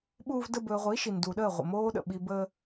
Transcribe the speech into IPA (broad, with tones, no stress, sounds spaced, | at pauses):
ɓ uː˦ v d ə˦ b ɵː˧ ʁʷ i˨˦ ʃ i˨ n d u˨ ɗ əː˦˨ ʁʷ ə̰˨ m oː˧ ɗ ə̰˨ ɓ i˧ b əː˦